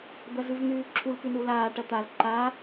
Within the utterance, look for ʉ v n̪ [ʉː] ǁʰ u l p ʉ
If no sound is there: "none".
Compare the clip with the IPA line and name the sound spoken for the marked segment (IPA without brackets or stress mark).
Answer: ʉː